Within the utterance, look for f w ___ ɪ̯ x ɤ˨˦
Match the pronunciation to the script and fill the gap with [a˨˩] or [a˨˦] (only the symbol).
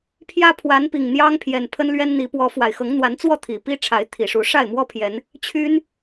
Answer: a˨˩